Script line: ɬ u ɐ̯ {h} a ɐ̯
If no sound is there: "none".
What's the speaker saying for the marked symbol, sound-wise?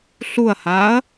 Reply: h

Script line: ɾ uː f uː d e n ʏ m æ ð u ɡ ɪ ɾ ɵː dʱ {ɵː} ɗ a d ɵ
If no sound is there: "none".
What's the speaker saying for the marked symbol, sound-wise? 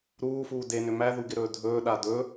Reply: ɵː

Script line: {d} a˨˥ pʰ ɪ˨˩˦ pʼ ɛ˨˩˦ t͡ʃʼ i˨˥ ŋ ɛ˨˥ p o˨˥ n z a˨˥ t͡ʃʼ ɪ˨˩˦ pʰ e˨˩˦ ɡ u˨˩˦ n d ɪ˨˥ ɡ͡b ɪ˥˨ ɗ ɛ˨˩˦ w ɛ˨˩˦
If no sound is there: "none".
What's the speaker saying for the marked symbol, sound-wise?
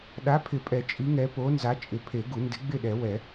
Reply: ɗ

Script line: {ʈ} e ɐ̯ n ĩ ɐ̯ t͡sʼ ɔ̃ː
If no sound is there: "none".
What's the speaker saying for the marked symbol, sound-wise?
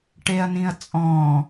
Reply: ʈ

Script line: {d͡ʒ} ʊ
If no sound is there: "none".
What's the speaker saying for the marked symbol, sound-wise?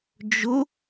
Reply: d͡ʒ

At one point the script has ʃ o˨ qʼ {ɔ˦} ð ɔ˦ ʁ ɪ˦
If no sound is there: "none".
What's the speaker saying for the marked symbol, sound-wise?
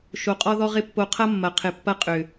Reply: ɔ˦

